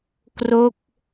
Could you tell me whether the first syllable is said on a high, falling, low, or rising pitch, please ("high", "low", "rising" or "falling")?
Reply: falling